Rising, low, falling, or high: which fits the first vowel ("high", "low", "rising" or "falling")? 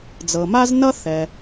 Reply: low